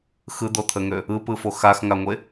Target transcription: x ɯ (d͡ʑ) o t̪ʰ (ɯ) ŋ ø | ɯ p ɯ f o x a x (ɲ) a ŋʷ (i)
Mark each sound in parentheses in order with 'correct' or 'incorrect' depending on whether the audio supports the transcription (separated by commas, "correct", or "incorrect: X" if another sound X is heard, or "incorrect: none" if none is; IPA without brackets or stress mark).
incorrect: d̪, incorrect: ə, incorrect: ŋ, incorrect: e